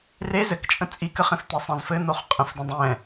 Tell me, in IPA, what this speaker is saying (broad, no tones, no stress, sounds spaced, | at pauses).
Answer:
r e z ɘ k t͡ʃʼ ə̃ t͡sʼ i k ə χ ẽ f t̪ e sˤ ẽ z f ɘ n̪ o χ qʼ ə̃ f d ə̃ dˤ ɛ̃